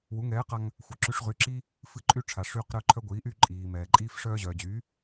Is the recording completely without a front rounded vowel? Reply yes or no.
no